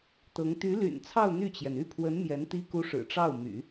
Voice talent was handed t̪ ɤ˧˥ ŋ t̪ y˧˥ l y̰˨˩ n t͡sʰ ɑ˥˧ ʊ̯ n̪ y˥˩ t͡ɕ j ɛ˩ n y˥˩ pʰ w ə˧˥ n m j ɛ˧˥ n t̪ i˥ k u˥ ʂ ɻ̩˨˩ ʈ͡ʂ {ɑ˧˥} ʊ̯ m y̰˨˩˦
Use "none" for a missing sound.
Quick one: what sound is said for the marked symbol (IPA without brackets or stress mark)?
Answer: ɑ˥˩